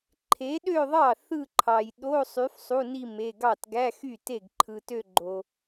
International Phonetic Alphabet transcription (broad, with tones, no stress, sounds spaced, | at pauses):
ǃʰ e˨˥ ɗ ø˥˧ ðˤ ɑ˥˩ θ ɯ˥˧ ǃʰ ɑ˨ j ɗ o˧˥˧ sˤ y˨˥ f sˤ u˧˥˧ n i˥˧ m e˧˥˧ ɡ ɑ˥˩ t ɡ æ˧˥˧ x y˥˩ t e˥˩ ɡ ǃʰ ɯ˨ t ø˥˧ ɡ͡ǃ o˨